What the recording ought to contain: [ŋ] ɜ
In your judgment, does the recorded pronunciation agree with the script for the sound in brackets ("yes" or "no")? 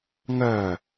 yes